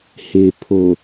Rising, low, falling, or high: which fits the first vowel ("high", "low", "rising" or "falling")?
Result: low